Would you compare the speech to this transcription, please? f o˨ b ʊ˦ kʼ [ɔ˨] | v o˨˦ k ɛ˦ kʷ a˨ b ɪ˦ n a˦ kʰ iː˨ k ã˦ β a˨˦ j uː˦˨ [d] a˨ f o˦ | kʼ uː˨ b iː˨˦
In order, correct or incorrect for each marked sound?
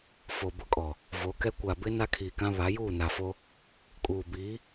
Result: correct, incorrect

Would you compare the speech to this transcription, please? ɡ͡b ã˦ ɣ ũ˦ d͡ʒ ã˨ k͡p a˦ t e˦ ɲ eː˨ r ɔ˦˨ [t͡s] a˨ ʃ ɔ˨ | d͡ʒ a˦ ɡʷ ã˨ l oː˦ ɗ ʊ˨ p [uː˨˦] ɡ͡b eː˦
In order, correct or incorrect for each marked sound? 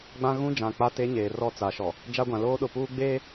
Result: correct, incorrect

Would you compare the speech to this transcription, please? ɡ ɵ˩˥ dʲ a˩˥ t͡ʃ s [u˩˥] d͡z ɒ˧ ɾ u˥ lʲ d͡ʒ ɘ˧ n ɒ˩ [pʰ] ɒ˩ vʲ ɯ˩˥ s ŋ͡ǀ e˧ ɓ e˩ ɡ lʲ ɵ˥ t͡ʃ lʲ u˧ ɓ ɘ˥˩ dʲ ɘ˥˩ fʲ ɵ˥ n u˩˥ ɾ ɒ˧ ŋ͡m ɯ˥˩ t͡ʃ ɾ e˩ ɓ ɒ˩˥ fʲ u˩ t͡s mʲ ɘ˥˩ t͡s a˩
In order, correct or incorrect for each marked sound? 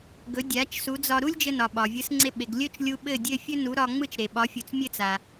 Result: correct, incorrect

